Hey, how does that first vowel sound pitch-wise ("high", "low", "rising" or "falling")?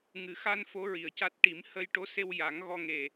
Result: low